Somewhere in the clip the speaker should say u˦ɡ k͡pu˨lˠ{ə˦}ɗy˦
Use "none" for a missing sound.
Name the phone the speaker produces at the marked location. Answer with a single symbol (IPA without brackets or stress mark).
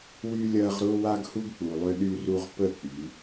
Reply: ʏ˦